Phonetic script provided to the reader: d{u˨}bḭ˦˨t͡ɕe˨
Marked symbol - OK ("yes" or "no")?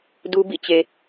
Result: no